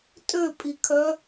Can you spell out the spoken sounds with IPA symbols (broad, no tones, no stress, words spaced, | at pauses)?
tʼøpʼikʰœ